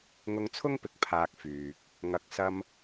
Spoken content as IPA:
ŋʊ˧ŋt͡sʰʊ˥ŋpɪ˨k̚pʰaː˨k̚ fyː˨k̚ | ŋɐ˨˥k̚sɐ˧m

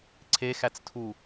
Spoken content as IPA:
ǀʰexæt͡stʰu

